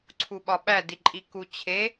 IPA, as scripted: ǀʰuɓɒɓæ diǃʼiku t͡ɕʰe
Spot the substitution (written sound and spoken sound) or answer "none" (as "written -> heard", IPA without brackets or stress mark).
none